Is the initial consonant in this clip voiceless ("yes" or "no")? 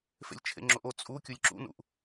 yes